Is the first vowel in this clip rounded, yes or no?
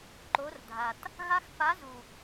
yes